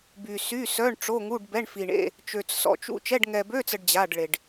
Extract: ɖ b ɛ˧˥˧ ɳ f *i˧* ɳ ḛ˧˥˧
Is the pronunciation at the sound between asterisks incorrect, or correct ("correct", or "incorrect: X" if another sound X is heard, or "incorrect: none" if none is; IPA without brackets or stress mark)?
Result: correct